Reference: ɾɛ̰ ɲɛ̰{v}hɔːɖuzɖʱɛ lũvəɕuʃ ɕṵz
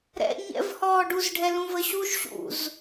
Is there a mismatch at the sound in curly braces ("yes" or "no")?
no